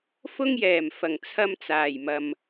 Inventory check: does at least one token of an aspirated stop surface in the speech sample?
yes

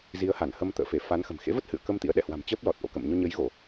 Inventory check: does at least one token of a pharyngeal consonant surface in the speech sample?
no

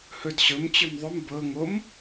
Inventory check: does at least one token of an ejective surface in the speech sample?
no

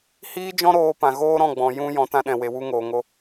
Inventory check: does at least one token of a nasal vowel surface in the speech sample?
yes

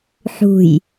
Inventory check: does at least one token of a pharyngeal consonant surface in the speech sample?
yes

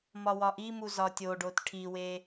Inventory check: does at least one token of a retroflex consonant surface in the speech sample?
yes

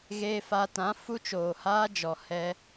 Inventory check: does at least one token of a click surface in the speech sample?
no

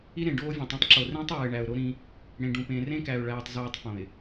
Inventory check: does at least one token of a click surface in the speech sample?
yes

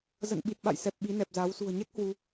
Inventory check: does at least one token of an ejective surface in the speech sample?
no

